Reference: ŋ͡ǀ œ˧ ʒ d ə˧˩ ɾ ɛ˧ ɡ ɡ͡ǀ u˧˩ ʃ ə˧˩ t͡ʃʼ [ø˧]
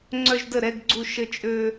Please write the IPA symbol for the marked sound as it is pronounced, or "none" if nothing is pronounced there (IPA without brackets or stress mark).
ø˧